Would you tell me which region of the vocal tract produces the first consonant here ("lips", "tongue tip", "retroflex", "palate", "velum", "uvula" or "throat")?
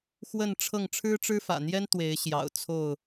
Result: velum